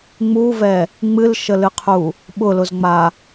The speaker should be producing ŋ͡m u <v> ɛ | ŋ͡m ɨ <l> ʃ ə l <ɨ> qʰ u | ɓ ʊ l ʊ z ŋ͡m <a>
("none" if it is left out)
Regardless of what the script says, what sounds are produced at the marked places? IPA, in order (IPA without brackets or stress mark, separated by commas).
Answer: v, l, ɨ, a